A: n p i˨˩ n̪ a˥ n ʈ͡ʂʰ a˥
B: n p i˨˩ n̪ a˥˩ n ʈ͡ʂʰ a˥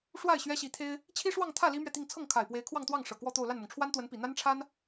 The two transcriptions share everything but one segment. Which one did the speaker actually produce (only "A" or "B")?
A